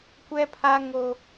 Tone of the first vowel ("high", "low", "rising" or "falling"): high